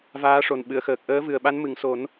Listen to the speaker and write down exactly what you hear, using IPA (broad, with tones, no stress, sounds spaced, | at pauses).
v aː˧˥ ʂ o˨˩ n ɓ ɨ˨˩˨ ə̯ x əː˨˩ k̚ ʔ əː˧˥ v ɨ˨˩ ə̯ ɓ a˧˥ n m ɨ˨˩˨ ŋ s o˨˩˦ n